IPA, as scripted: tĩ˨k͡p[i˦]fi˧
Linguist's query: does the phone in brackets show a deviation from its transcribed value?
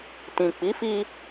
yes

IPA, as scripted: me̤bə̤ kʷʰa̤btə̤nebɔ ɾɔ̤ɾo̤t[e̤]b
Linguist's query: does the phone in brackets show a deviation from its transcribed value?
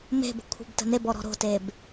yes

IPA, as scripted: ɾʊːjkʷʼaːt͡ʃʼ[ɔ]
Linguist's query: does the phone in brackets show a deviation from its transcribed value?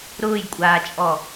no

